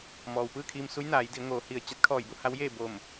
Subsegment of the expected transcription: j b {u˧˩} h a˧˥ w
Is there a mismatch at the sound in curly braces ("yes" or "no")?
yes